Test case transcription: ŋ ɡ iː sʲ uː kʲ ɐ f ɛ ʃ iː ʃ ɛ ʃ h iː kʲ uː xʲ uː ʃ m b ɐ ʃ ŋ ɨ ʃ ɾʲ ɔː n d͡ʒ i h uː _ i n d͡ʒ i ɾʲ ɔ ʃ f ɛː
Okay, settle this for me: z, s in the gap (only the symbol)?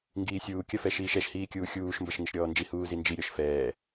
z